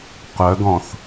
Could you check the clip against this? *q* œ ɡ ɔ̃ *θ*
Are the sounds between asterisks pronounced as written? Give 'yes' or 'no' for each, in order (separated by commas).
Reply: yes, yes